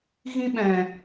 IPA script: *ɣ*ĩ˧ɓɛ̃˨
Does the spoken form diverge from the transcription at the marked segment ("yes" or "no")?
no